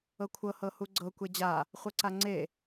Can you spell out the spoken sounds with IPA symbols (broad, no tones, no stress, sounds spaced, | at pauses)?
ɤ kʷʰ ɤ h ɤ h u ɡ͡ǀ ɤ kʷ e d͡ʑ a | χʷ ɤ ǀ a ŋ͡ǀ e